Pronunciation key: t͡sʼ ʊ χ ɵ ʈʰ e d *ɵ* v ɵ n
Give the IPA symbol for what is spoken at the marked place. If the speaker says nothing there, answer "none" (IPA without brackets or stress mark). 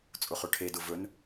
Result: ʊ